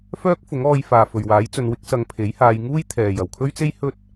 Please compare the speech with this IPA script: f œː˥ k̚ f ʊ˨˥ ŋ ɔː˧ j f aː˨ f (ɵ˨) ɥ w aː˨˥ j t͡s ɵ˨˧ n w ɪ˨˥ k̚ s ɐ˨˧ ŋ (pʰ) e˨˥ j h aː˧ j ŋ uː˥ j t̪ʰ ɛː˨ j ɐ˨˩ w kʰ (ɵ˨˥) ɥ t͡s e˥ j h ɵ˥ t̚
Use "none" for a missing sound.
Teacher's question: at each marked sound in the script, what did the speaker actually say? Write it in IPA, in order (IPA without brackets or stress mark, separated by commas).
ɵ˨, pʰ, ɵ˥